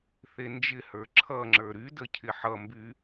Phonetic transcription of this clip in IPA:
θ e n d͡ʒ ɪ h ə˞ ǁʰ ʌ ŋ͡ǁ ə˞ ɾ y d ə cʰ ɪ ħ ʌ m b y

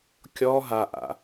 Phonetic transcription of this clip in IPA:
kʲ ɔː ɦ a ʔ a̰

